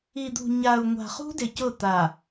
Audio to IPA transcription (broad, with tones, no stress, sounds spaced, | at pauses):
i˨ d̪ ṳ˨ ɲ a˨ u̯ ŋʷ a̤˨ χ ṳ˦ d ɪ˨ c ʊ˦˨ t̪ a˨